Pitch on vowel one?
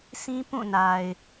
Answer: high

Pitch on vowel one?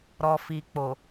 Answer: low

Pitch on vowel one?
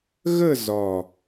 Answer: falling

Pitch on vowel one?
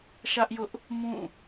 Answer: high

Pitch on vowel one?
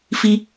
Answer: high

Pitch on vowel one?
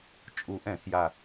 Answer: low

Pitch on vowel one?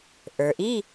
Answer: low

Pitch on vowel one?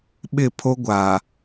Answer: falling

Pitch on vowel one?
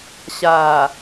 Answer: low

